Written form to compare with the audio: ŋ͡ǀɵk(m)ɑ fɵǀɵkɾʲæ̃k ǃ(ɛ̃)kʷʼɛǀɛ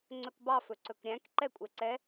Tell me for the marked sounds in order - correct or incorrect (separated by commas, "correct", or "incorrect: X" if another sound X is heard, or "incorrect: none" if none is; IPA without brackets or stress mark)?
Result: incorrect: b, incorrect: ɛ